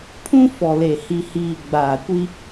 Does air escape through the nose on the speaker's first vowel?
yes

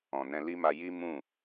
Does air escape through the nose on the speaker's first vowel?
yes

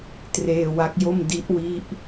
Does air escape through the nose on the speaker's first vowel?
no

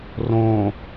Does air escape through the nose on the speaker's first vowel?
yes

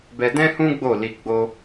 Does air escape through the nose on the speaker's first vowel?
no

